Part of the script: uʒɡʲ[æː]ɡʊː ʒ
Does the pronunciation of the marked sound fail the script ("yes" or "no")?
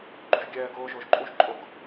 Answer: yes